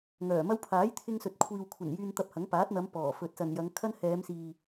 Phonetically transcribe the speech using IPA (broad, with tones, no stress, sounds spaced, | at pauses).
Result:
ŋ œː˨˩ m ɐ˥ w pʰ aː˨˥ j t̪ʰ ɪ˧ ŋ s ɵ˨ t̚ kʷʰ iː˨ w kʷʰ ɐ˨˩ n j yː˧ n t̪ ɐ˧ p̚ h ɐ˨˥ ŋ p aː˨˥ t̚ n̪ ɐ˨˧ m p ɔː˨˩ f ɵ˨ t̚ s ɐ˨ n j ɐ˨˧ ŋ kʰ ɐ˥ n h ɛː˨˧ m s iː˨